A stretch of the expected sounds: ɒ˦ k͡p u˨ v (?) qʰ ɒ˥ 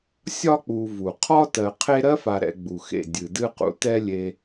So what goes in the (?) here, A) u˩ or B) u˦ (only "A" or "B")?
A